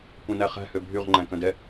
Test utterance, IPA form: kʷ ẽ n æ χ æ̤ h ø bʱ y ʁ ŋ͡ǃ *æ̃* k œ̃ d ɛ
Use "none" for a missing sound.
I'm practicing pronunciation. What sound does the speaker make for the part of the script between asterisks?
æ̃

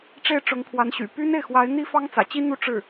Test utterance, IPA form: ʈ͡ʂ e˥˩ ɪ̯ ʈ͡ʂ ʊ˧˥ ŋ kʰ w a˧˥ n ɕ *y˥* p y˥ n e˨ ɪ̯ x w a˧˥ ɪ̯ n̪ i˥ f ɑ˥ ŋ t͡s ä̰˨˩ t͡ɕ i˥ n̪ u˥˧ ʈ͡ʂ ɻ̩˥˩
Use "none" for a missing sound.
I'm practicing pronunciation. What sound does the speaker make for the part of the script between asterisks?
y̰˨˩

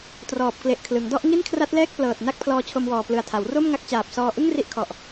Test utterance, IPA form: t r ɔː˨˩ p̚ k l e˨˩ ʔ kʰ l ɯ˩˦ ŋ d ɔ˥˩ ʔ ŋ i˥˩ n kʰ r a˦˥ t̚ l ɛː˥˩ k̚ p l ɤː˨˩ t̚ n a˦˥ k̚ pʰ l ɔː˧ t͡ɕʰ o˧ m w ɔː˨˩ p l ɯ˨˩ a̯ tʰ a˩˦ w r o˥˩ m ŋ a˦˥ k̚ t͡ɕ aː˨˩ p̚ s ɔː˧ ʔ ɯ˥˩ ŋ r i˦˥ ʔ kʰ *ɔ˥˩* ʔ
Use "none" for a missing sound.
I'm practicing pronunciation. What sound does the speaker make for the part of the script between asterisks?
ɔ˨˩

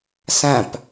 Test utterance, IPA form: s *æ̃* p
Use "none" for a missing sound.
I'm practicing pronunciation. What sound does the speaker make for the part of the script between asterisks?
æ̃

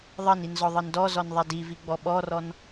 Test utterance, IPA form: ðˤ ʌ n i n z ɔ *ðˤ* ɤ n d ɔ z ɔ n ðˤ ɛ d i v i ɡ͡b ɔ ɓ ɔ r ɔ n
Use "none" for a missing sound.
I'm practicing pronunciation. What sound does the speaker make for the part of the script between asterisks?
ðˤ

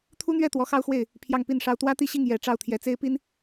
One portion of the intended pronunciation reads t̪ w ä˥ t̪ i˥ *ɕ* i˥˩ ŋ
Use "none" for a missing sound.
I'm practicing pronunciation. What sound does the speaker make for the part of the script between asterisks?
ɕ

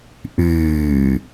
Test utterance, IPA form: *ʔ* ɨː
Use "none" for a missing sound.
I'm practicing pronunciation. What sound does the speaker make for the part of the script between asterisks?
ʔ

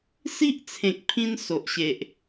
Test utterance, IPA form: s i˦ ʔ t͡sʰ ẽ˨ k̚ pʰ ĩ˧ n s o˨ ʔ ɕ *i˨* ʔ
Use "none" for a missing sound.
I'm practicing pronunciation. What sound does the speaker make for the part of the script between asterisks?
e˨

